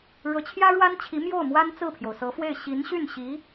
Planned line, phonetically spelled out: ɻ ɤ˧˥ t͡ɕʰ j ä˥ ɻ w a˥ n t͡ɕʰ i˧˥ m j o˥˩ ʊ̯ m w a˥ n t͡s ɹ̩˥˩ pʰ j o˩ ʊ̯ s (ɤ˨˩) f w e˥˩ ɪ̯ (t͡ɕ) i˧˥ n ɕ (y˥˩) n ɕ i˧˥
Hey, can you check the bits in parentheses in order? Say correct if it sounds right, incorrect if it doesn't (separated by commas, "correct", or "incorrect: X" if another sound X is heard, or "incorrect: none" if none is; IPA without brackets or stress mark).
incorrect: ɤ˧˥, incorrect: ɕ, correct